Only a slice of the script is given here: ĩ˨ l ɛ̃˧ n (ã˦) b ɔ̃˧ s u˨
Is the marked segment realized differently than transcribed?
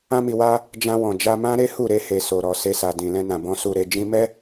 yes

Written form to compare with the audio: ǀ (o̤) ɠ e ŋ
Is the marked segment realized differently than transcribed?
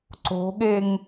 no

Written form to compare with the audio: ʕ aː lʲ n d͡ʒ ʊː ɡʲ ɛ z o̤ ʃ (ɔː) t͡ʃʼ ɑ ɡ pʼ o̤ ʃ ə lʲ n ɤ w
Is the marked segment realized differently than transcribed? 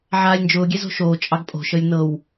yes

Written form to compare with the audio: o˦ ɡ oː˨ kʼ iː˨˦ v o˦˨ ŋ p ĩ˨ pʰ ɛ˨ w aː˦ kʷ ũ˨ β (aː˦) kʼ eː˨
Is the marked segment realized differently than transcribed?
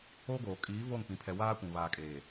yes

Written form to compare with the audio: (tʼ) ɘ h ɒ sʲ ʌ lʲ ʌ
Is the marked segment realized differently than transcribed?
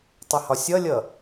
yes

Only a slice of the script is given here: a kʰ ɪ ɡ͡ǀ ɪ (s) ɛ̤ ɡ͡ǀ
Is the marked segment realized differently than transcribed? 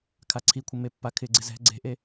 yes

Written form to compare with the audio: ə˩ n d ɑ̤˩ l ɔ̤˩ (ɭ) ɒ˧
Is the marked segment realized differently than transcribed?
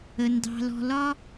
yes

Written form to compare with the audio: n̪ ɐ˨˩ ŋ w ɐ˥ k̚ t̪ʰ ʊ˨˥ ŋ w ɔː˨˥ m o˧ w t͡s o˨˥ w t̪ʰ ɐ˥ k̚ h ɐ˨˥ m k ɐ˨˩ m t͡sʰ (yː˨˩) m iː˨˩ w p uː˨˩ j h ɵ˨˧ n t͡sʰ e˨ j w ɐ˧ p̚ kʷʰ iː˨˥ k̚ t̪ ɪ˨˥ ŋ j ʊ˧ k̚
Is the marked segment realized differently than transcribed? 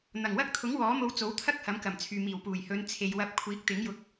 yes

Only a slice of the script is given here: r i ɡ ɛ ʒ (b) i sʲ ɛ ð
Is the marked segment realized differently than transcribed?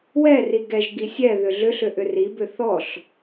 yes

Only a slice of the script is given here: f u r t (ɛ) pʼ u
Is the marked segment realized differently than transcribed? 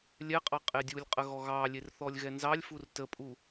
yes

